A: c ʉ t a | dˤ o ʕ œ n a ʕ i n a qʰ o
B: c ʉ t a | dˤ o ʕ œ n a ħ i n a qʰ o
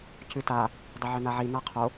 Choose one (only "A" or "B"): A